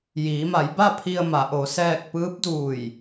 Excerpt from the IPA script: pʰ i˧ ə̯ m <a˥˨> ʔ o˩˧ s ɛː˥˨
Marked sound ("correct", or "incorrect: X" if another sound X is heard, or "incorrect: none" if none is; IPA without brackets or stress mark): incorrect: a˩˧